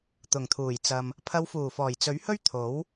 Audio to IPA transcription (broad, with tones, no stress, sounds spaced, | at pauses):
t̪ ʊ˨˩ ŋ t̪ʰ uː˨˩ j t͡s ɐ˨ m | pʰ ɐ˨˧ w f uː˨˩ f ɔː˨˩ j t͡s ɵ˨˥ ɥ h ɵ˥ ɥ t̪ʰ o˨˥ w